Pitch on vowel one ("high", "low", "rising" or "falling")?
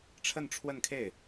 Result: falling